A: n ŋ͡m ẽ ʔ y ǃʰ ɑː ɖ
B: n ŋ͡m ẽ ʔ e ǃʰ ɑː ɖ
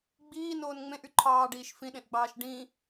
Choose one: A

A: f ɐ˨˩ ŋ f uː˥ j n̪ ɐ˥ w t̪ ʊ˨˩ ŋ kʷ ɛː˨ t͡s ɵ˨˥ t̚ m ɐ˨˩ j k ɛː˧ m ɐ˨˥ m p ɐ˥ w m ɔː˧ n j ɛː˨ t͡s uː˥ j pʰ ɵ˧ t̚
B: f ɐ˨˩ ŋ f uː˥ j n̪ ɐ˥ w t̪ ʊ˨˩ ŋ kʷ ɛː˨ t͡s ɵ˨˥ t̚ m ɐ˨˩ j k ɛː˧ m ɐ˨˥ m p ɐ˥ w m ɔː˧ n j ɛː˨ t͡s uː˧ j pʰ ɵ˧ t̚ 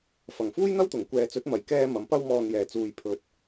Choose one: B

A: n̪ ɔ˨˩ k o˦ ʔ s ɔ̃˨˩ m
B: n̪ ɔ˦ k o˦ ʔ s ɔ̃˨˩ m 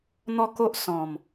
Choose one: B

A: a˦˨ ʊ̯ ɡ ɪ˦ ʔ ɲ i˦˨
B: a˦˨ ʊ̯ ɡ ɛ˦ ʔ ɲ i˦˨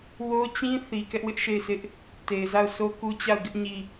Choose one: A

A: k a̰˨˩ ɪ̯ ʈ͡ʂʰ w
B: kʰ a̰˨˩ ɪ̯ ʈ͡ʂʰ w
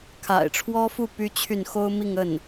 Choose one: B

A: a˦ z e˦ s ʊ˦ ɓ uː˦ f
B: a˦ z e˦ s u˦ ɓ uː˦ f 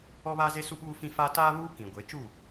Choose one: B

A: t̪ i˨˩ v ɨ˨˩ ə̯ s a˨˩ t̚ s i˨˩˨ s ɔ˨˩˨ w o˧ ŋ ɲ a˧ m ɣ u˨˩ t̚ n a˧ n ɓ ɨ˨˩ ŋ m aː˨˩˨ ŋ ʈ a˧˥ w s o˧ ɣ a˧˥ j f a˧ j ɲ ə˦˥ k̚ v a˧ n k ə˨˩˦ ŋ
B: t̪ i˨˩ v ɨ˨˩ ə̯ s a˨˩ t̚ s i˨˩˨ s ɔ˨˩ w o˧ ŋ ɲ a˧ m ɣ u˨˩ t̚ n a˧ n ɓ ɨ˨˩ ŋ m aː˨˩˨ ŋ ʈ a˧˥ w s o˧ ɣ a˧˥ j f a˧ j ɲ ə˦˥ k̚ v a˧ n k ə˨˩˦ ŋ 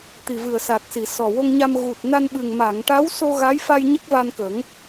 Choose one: B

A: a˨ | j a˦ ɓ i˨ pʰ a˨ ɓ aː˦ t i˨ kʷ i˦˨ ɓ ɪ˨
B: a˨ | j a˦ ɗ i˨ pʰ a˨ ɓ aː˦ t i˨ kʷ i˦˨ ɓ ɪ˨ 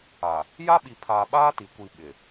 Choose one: A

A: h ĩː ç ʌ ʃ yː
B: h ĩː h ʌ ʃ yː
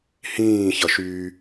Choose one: A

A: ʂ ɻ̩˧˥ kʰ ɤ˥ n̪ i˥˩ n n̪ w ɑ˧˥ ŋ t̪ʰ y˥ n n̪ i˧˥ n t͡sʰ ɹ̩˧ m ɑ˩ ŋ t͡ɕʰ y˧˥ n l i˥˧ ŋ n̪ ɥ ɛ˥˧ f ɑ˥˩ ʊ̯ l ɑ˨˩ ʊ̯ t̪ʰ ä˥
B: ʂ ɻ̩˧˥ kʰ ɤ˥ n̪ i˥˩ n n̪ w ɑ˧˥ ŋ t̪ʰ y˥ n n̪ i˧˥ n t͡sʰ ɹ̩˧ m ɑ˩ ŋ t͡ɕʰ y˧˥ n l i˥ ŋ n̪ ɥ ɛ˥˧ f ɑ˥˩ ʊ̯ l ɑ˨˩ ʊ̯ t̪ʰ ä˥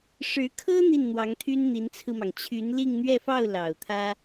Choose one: A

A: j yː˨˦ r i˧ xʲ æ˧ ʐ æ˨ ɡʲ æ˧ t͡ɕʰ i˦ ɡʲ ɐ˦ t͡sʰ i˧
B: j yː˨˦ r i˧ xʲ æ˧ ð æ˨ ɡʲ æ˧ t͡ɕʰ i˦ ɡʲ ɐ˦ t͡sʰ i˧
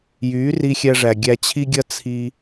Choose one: A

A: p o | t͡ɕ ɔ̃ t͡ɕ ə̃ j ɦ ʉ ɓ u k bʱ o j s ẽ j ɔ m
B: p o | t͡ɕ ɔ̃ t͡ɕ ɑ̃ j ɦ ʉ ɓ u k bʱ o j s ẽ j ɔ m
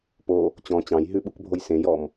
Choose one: B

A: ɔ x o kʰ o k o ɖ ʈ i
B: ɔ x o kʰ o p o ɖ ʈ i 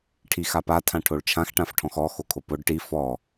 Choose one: B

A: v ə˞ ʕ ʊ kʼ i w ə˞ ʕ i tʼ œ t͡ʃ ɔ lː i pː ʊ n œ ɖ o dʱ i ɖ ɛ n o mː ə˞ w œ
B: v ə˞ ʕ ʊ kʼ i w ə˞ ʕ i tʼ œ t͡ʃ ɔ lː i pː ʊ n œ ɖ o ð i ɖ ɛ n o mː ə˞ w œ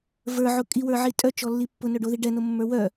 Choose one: B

